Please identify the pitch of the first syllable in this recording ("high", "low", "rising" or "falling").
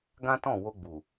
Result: high